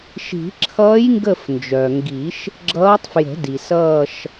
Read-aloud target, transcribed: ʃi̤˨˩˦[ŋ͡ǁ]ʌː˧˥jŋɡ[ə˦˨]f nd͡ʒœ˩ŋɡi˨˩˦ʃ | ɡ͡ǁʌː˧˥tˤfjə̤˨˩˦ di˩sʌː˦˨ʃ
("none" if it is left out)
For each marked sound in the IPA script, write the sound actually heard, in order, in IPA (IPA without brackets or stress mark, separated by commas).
ǁʰ, ə˦˨